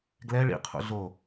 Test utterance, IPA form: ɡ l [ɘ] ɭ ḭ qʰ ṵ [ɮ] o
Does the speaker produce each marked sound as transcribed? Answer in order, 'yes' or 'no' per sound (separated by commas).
no, yes